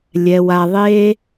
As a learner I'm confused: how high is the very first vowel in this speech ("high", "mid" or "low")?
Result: mid